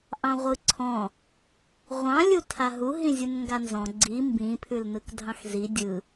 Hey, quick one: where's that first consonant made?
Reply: throat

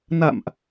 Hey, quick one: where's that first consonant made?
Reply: tongue tip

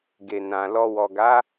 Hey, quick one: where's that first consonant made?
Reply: velum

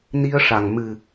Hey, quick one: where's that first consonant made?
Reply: tongue tip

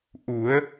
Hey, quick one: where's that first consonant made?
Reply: throat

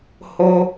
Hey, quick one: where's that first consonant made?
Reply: throat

